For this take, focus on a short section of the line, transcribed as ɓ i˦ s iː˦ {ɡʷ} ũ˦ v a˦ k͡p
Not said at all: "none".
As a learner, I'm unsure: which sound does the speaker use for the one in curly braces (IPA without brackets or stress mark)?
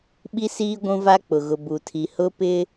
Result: ɡʷ